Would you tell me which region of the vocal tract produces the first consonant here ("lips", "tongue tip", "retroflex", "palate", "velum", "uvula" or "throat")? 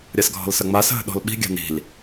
tongue tip